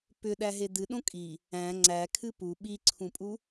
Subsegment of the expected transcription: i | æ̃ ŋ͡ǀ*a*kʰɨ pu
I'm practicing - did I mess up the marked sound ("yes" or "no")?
yes